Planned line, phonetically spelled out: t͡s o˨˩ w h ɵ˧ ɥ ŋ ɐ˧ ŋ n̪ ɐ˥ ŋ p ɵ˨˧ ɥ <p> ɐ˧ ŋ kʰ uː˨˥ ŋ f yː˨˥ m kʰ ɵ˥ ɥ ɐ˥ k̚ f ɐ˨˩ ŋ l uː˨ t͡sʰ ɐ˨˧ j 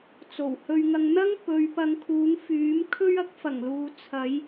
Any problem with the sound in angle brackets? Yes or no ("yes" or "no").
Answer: no